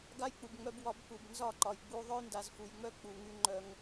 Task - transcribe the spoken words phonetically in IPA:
ɡ a˦ j k͡p u˨ b ŋ͡m œ˧ b w ɒ˧ b k u˨ b n z ɒ˦˨ ǃ ɒ˨ j ɡ͡b u˧ ðˤ œ˦ j n d a˨ z f u˨ j ŋ͡m œ˦ k͡p u˨ ŋ y˧ ŋ͡ǃ œ˧ ŋ

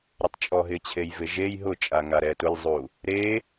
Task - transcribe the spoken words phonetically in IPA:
ɾ ɪ tˤ t͡ʃʼ ɔ ɦ ɪ t͡ɕʰ e j v ɪ ʒ e j ɦ ʊ t͡ʃʼ a ŋ a ɾ ɛ t ʊ lʲ zˤ u | ɾ e

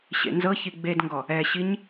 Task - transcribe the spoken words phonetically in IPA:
ɕ ḛ n z ɤ ç i ɡ͡b e d ŋ ɡ ɔ | ɛ ɕ i ɲ

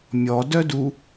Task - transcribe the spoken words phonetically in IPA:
mʲ ɔ d œ d u

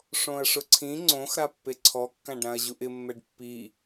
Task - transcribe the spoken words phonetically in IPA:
ʂ õ ɐ̯ ʂ ʊ ǀʰ ĩ ŋ͡ǀ õ x ɾ a pː e ǀʰ ɔ kː ã ɖ ɾ ã ɐ̯ ʑ u ʔ ɪ mː ɛ ɖ pː i

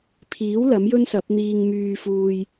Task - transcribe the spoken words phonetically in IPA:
pʰ iː˨˥ w l ɐ˨˥ m j ɵ˥ n s ɐ˨˥ p̚ n̪ iː˧ ŋ m yː˨ f uː˨ j

